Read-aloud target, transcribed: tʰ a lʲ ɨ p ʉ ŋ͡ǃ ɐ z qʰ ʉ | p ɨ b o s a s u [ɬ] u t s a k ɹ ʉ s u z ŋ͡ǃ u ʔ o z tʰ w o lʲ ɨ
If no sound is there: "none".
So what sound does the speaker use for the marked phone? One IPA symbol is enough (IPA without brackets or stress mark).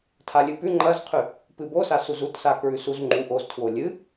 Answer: z